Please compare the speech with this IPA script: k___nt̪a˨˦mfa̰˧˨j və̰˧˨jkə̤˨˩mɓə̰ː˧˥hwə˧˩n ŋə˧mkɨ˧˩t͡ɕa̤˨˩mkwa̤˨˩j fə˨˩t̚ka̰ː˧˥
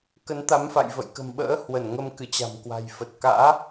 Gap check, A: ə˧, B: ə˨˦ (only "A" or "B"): B